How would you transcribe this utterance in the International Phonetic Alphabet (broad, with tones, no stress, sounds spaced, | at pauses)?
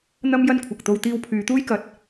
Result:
n̪ ɐ˥ m j ɐ˥ n kʷʰ ɐ˨ k̚ t̪ o˧ w t̪ iː˧ w pʰ yː˨˧ t̪ uː˥ j k ɐ˨˥ t̚